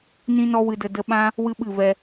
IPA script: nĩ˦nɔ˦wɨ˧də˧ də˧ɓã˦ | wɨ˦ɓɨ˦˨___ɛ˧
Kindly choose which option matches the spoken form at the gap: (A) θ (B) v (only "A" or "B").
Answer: B